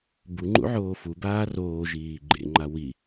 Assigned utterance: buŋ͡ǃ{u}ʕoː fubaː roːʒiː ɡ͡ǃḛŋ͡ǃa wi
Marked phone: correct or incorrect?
incorrect: ṵ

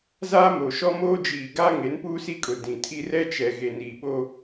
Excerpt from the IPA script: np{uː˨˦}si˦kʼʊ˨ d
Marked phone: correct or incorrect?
incorrect: uː˦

